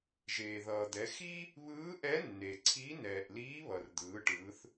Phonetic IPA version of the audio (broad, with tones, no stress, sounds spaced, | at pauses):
ʒ eː˩ ð ʌː˩ d̪ ɛ˩˧ x i˥ | β ɯː˧˥ ʔ ɛ˧˥ nː e˩ ǀʰ i˧˥ n ɛː˩ ʔ l iː˧˥ β ʌ˩ r d̪ ɯː˩˧ ʈ ɯː˩˧ θ